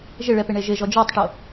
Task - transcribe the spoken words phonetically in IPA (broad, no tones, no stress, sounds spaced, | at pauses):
ʒ ɪ ɭ ɛ p ɪ ɳ e ʒ ɪ ʒ ɔ d͡ʒ ɔ tˤ ʈ o